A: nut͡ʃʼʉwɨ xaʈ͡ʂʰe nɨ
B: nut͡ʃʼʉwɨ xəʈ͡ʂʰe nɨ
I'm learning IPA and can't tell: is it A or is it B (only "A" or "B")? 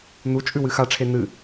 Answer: A